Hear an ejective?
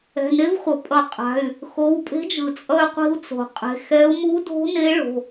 yes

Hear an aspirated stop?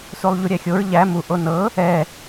no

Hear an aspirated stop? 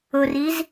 no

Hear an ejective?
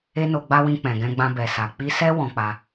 no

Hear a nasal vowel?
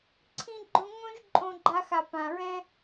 yes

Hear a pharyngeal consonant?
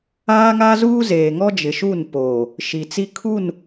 no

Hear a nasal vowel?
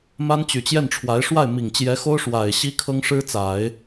no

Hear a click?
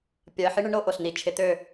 no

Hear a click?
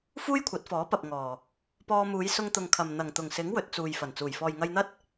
no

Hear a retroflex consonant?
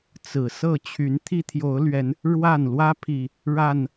yes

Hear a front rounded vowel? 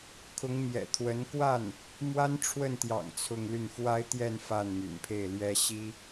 yes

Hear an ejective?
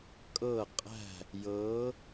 yes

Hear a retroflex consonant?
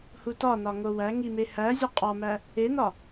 no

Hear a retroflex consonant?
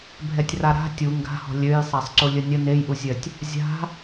no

